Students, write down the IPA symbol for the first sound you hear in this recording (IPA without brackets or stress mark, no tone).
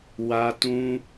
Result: w